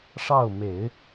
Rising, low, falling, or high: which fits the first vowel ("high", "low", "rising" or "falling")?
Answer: falling